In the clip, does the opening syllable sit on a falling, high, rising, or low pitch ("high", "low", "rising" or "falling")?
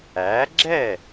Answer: rising